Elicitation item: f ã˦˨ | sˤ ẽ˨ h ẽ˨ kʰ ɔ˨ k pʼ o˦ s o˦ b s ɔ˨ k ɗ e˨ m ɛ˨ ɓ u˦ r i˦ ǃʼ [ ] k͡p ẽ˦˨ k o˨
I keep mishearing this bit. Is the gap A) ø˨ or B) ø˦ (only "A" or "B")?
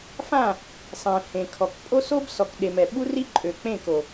A